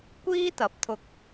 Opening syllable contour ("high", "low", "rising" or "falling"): high